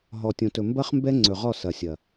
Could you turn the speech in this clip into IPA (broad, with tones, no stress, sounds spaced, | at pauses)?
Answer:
ɦ ɔ˨ tʲ õ˨ t ɵ˨ m b ɐ˦ χ m b ɛ˦ ŋ͡ǀ ɵ˨ ʁ ɔ˦˨ s ɐ˨ sʲ ɐ˨